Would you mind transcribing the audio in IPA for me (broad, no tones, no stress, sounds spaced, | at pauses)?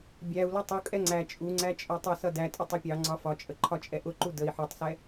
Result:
bʲ æ u̯ l ʌ tˤ u kʼ ɛ ŋ͡ǀ æ t͡ʃʼ u ŋ͡ǀ æ t͡ʃʼ ɒ tˤ ʌ s ʌ d æ tʼ ə tˤ ʌ pʲ ɑ ŋ͡ǀ ɒ f ɒ t͡ʃʼ ə ǃʰ ɒ t͡ʃʼ ɛ ʔ ʊ ǃ u d ə i̯ ħ ɔ tˤ s ɛ